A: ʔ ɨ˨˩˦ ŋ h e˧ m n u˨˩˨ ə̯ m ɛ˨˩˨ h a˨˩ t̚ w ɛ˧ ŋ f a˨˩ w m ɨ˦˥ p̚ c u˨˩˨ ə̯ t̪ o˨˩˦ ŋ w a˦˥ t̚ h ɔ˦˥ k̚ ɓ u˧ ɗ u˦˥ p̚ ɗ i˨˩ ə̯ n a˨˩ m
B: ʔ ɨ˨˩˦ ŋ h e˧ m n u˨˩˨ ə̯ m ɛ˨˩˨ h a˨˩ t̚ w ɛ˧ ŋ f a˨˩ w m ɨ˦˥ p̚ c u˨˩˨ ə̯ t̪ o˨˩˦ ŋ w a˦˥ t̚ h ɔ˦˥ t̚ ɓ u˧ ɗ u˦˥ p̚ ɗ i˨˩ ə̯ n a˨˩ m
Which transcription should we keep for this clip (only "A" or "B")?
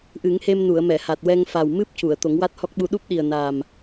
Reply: A